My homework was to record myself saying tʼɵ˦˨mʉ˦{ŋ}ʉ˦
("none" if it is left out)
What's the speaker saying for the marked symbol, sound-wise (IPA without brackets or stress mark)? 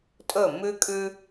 kʼ